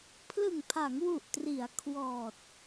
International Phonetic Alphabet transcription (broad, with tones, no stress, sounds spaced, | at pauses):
pʰ l ɯ˨˩ ŋ pʰ a˩˦ ŋ w u˨˩ ʔ t r i˩˦ a̯ kʰ w ɔː˨˩ t̚